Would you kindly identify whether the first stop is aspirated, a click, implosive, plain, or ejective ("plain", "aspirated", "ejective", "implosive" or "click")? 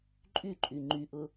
click